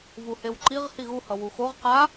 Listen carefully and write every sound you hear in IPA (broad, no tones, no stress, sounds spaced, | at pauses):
v u h e w ǃ i ʁ h i ɣ u h ʌ w u x o ʁ q a